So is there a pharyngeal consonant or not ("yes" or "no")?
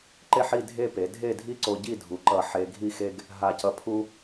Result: yes